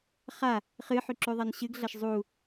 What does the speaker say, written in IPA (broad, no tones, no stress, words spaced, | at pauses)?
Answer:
χa | χɨħʉǁʉðˤɐn ɕɨɡɮɐʃ zˤu